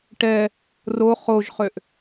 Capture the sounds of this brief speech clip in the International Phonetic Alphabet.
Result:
ʈɛ | ro χoʒχøʔ

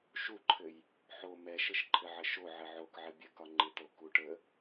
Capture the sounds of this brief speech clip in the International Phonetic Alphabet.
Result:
ʃuǃʰɘj | ħo mɛʃɘʃ ǃʰɘʕəʃo ʕəʕokʕɘ bʲəkɒ ŋ͡ǃɪt̪o kuʈə

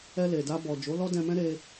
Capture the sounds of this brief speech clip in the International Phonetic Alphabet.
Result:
ɛ˧le˨da˧ bɔ˨ d͡ʒo˨˦lɔ˦dɛ̃˧mɛ̃˦ ɾe˧

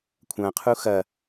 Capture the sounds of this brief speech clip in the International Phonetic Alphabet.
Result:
kʷʰɐ̃qʰu xɐ

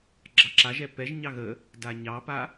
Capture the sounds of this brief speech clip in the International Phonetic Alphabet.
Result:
ɡ͡ǁɑǁaʒɛ pɛʒɲɑ ɣə | daɲɑpa

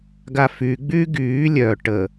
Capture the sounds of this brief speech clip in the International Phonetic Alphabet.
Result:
ɡafyɡ͡byː ɡyː lʲœ ʈə

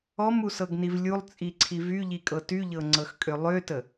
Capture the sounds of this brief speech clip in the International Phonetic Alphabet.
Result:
ɔmusɤɡniv lʲulˠt͡sʼiǀʰi vyʎikʼɤ tyʎɤŋ͡ǀɤxkʼø lˠøtə

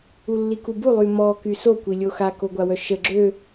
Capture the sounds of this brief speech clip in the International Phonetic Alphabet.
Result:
ulːikubu lˠymɔ kyso kʷilʲoxa koɡʷawœʃə ɡ͡ǁø

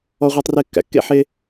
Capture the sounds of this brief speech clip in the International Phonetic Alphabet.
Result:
ɔ˥ʁʷe˥tˤre˥ kːæ̰˩kːḛ˥ħe˥

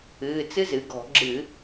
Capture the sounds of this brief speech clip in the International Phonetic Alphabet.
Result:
ɨː˩˧˩t͡sɨ˦˥zɨ˩˧ɡɔ̤˧˩˧ ɡ͡ǁɨ˧˩˧

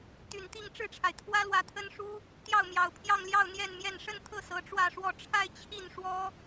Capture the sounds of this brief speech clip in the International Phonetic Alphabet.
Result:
t̪y˨˩nt̪i˥˧ŋ ʈ͡ʂɻ̩˥˩ʈ͡ʂʰa˩ɪ̯ t̪ʰwä˥lwä˧˥t̪ʰə˥n ʂu˥ | t̪jɑ˥˩ʊ̯mjɑ˨˩ʊ̯ pʰjɑ˥˧ŋljɑ˥˧ʊ̯ n̪jɛ˥˧nmjɛ˥˧n ʂə˥˧nt̪ʰɤ˥˩ sɤ˧˥ʈ͡ʂwä˥˧ʂwɔ˥˧ ʈ͡ʂʰa˥˧ɪ̯ t͡ɕʰi˥˩n ʂwɔ˥

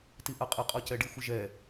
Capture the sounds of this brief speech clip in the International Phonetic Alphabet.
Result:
tiʔaqʼɛ qʼɔcɛɖi xʷɪʒɛ

